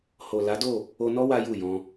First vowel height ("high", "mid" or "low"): mid